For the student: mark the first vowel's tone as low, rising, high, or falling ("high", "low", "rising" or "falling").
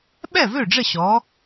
falling